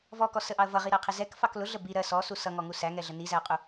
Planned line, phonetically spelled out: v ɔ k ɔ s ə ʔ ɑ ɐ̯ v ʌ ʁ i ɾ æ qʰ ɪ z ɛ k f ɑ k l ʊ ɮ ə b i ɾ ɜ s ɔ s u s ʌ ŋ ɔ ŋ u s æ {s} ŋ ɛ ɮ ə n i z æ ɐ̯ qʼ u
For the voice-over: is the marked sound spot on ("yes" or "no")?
no